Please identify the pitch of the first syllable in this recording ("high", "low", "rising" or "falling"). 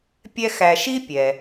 high